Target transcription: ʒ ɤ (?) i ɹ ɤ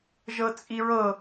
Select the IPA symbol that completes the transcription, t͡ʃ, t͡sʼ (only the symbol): t͡sʼ